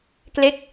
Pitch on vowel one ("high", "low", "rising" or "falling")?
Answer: falling